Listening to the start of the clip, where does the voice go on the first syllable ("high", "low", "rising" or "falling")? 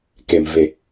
low